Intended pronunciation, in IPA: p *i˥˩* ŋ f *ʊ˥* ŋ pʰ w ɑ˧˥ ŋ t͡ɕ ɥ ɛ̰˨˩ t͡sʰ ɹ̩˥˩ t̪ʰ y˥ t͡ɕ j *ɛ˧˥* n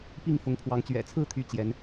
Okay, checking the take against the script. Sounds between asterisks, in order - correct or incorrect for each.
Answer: correct, incorrect: ʊ˧˥, correct

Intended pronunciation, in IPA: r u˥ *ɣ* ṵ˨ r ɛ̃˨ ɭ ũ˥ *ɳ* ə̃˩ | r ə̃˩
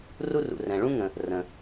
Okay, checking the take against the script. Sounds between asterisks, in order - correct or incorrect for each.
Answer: incorrect: r, incorrect: ŋ

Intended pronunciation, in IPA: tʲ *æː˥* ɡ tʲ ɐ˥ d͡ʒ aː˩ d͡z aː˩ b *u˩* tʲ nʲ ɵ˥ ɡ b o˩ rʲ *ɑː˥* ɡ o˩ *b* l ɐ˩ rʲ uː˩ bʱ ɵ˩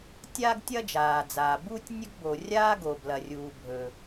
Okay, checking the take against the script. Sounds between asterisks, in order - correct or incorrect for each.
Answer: incorrect: aː˥, incorrect: u˥, incorrect: aː˥, correct

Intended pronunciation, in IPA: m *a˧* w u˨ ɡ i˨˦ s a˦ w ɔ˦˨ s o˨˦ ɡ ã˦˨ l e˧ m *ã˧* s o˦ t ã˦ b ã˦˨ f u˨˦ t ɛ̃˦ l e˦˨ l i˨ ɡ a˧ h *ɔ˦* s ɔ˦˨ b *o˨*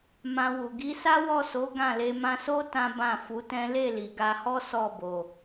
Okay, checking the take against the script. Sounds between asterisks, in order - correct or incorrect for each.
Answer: incorrect: ã˧, correct, correct, correct

